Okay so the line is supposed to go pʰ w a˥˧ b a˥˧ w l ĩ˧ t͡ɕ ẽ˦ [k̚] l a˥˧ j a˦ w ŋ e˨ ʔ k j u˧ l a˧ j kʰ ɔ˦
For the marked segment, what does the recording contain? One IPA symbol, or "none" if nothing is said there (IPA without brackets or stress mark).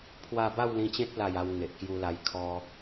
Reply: t̚